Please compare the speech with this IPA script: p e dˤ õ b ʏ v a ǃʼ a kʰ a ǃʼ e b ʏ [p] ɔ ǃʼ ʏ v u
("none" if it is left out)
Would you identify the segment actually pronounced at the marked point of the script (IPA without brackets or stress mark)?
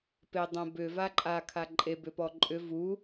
p